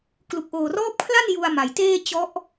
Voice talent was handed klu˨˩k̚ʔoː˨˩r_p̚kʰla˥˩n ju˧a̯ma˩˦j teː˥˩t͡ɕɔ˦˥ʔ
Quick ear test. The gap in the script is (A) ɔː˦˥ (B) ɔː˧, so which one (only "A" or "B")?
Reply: A